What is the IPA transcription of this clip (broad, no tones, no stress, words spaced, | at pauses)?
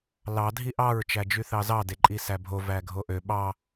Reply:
lɑ dʱiʔɑɹ t͡ʃæd͡ʒyθɑzɑ deǃʼisæbʱo væɡʱoʔø ɓɑ